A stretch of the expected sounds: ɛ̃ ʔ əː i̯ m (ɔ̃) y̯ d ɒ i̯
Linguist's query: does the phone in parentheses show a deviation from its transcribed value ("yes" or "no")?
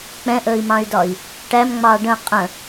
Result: yes